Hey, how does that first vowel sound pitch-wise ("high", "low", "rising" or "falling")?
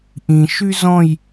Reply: low